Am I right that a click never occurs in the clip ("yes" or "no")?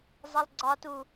no